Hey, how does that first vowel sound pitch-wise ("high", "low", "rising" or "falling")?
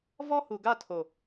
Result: high